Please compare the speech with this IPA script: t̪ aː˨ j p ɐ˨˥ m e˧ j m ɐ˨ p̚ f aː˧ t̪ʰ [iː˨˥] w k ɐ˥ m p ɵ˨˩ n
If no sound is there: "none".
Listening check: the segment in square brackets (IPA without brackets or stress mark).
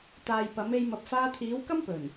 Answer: iː˨˥